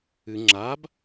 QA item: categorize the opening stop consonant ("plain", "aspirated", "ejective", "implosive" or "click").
click